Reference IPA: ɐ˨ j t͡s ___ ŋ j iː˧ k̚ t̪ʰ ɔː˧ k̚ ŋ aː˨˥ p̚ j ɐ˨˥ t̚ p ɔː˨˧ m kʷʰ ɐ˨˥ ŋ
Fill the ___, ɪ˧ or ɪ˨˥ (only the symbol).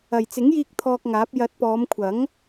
ɪ˨˥